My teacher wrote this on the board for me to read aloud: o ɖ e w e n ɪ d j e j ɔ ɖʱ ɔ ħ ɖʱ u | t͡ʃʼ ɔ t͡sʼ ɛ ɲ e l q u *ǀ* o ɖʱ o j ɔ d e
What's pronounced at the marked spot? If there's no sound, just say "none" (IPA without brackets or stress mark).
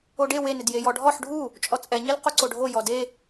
ǀ